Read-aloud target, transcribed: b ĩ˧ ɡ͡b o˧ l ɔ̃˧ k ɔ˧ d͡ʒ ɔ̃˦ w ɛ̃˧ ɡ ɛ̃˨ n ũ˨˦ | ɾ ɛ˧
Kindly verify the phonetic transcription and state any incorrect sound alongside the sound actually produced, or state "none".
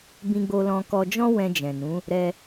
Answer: ɡ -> d͡ʒ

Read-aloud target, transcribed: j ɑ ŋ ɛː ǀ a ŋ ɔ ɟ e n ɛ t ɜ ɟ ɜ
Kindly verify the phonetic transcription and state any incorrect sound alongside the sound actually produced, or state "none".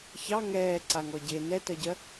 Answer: j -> ç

